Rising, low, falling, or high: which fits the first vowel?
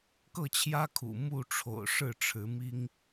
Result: falling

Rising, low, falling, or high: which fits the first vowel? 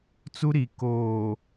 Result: high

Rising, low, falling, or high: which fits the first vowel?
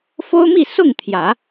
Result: high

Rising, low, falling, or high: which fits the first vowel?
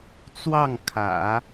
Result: falling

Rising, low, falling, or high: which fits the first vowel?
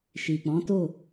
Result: low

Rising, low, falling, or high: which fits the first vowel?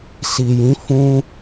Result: low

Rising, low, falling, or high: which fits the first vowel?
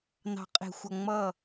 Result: low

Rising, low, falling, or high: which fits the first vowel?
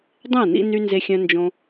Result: falling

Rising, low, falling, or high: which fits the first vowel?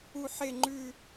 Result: low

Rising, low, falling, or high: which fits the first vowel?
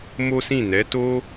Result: high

